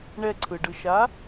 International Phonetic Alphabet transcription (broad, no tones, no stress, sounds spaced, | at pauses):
ɳ ɛ ǀʰ ɯ ɖ ɯ ʃ a